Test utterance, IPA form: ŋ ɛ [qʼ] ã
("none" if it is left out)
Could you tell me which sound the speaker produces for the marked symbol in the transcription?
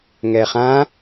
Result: χ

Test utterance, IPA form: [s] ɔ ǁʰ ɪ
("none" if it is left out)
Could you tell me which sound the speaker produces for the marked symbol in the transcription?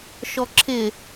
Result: ʃ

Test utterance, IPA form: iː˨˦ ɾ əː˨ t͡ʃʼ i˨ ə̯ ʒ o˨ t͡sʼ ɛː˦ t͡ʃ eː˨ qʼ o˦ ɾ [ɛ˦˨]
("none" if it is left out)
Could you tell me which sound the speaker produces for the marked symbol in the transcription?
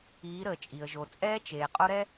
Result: ɛ˦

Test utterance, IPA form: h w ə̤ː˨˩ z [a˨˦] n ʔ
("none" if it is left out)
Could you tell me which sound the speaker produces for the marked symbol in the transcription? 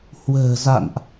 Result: a̰˧˨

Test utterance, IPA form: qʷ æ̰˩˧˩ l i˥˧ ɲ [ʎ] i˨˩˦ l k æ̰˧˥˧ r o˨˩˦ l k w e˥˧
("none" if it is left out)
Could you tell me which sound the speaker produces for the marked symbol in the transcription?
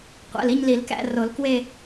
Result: l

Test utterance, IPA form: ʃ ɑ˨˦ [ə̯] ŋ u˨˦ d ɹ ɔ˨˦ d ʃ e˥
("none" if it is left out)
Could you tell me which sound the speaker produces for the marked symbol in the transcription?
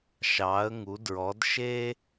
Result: ə̯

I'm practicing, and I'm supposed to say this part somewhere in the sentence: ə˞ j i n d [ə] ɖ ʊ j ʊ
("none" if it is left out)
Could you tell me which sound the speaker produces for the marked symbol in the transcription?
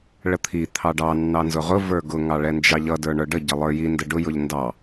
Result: ə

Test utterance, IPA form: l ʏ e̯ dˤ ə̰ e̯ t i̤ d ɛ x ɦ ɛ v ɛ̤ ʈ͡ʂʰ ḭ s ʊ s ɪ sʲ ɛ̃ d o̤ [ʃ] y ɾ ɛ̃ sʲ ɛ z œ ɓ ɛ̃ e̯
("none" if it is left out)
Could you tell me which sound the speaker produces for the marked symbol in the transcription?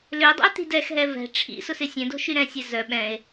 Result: ʃ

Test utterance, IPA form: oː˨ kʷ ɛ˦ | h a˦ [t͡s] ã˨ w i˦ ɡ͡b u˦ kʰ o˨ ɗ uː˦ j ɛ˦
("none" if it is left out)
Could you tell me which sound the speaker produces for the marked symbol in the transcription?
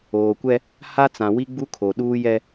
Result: t͡s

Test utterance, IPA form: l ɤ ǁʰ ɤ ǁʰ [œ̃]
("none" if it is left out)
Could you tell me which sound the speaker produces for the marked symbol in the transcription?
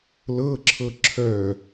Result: œ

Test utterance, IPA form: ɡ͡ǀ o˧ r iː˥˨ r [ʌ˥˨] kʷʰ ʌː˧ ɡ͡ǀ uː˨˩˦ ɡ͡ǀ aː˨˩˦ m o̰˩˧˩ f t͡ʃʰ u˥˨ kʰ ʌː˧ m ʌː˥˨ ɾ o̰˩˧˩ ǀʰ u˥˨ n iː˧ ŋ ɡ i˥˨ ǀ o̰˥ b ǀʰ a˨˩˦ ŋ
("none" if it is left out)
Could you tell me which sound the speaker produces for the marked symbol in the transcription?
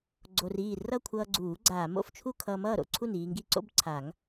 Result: ʌ˥˨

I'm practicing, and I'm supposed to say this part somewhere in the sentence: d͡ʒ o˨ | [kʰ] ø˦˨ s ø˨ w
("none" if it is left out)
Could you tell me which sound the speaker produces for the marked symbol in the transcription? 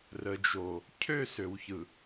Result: cʰ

